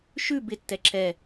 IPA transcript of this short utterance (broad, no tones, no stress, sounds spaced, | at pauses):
ʃ ʉ b ɪ tː ɛ ǁ ɛ